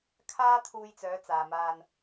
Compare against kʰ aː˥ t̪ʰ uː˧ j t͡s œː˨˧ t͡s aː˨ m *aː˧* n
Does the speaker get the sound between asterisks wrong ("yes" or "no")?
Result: no